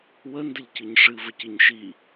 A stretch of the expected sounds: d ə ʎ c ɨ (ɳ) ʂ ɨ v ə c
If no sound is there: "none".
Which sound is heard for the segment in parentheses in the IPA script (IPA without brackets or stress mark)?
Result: ɲ